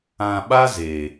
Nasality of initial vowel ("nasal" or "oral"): nasal